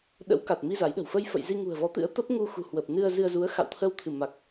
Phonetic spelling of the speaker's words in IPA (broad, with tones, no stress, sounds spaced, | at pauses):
ɗ ə̰˧˥ w k a˨˩ t̚ m i˧ z a˨˦ j ɗ ə̤˨˩ w f ə˧ j f ə̰˧˨ j z i˧ ŋ ṳ˨˩ ə̯ v ɔ˨˦ t̪ ɨ̰˧˥ ə̯ t̪ ə˦˥ p̚ ŋ u˧ x ṳ˨˩ h w ə˨˩ p̚ n ɨ˧ ə̯ z ɨ˧ ə̯ z u˨˦ ə̯ x a̰˧˨ w t̪ʰ ə˧ w t̪ʰ ɨ˧˩ m a˨˩ k̚